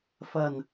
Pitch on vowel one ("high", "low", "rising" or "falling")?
low